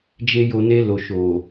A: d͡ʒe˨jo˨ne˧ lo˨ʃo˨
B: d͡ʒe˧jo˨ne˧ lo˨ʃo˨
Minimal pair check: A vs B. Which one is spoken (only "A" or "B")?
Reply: B